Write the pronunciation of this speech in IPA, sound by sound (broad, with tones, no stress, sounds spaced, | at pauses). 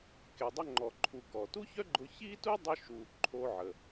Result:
k e˩ dˤ ʊ˧ ŋ͡ǃ ɔ˩ ǃʰ u˩ k ɔ˩ t u˥ ç œ˥ ɡ͡ǃ ʊ˧ ç i˥ t u˥ dˤ ʊ˧ ʃ u˩ ǃʰ o˧ ʕ ə˩